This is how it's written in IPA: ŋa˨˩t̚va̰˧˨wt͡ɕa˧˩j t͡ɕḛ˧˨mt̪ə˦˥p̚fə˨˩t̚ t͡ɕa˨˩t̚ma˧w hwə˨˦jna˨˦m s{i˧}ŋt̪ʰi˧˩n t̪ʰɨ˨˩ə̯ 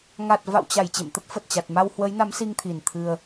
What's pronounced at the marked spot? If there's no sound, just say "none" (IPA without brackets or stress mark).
i˧